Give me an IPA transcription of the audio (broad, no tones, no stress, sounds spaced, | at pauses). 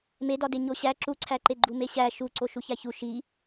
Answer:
m e d ɒ d e ɲ o ɕ æ ǁ u ǀʰ æ ǃ e ɡ͡ǃ u m e ɕ æ ʃ u ǀ o ʃ u ç æ ç u ʃ i